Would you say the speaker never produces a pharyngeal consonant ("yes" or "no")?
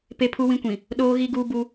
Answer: yes